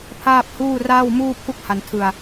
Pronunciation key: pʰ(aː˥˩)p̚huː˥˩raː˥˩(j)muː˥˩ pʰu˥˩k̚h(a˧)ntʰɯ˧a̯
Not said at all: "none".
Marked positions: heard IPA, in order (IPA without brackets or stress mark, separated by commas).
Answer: aː˥˩, w, a˧